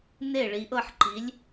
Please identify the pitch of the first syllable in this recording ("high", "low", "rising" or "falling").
falling